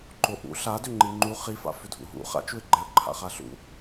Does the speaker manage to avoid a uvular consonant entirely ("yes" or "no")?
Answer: no